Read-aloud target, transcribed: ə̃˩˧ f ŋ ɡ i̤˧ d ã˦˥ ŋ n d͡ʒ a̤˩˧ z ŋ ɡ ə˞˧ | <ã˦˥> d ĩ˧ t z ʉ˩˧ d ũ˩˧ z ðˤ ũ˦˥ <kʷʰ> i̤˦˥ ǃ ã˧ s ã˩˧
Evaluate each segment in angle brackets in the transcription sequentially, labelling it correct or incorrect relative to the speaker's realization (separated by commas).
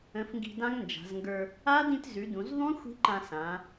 incorrect, incorrect